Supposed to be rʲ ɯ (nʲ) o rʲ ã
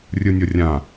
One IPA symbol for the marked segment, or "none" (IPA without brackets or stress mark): nʲ